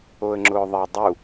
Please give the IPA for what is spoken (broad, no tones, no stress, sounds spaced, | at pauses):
o ə̯ ŋ͡ǁ ʊː ðˤ ɛ dˤ u